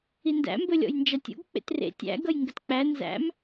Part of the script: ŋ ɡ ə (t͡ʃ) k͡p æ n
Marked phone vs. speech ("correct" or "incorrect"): incorrect